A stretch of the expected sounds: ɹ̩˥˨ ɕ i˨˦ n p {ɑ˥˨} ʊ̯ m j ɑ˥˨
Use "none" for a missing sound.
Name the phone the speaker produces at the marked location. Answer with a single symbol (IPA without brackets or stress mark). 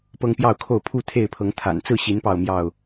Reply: ɑ˥˨